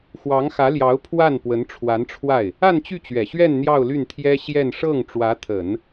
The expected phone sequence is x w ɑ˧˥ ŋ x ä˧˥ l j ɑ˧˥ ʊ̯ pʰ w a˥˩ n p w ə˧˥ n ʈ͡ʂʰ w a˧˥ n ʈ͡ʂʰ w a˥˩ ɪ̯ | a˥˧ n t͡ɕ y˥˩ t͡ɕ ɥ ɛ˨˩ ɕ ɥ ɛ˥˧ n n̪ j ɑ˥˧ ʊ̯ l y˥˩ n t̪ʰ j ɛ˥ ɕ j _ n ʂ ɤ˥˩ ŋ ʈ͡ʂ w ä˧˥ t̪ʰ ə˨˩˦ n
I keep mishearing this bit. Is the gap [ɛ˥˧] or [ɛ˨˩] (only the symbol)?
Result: ɛ˥˧